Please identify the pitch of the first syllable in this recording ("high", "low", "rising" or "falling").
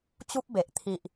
high